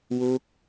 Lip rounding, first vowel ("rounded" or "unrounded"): rounded